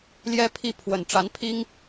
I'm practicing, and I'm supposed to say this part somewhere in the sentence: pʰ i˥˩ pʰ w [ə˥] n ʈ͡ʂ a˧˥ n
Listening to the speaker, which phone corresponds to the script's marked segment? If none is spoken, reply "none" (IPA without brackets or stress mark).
ə˨˩